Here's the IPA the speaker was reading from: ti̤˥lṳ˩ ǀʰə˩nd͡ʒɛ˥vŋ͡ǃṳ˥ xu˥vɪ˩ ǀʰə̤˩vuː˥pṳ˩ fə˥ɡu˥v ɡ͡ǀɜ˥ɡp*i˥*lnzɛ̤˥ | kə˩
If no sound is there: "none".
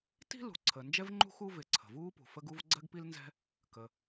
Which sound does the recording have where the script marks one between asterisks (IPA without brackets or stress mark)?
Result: i˥